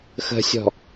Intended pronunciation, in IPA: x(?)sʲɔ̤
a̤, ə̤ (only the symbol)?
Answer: ə̤